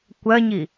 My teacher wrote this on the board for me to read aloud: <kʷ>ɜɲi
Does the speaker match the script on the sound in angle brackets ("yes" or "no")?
yes